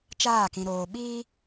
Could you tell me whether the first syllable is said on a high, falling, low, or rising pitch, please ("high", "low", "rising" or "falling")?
falling